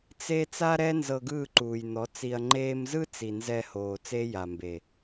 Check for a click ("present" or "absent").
present